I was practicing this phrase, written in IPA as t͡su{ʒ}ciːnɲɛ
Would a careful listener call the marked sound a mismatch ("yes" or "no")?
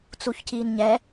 yes